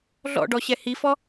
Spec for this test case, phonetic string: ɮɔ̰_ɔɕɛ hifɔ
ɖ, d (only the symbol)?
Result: ɖ